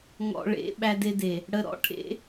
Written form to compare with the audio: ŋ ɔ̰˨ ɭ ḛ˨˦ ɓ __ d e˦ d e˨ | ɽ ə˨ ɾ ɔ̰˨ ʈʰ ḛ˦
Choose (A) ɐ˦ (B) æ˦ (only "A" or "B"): B